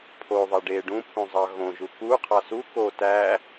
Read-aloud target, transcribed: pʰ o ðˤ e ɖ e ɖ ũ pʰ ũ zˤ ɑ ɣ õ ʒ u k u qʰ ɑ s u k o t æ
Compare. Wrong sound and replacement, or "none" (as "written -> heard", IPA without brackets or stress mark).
none